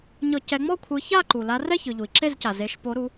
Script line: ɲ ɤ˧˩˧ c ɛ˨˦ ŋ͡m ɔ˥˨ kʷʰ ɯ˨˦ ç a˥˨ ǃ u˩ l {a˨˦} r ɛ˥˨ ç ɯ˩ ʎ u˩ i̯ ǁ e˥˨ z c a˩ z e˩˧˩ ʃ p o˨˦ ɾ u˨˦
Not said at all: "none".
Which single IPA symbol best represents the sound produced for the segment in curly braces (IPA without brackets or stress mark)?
a˨˦